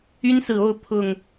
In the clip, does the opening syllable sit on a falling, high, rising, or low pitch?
high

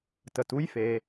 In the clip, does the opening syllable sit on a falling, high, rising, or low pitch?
low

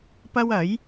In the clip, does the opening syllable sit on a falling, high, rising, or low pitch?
high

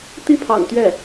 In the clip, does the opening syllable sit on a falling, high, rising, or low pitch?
high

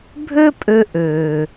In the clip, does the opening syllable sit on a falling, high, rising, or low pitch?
high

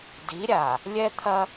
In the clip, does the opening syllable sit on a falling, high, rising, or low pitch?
rising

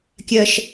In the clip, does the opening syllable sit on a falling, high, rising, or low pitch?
high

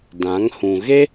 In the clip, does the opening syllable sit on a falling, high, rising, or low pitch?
rising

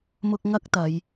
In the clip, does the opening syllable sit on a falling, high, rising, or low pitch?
high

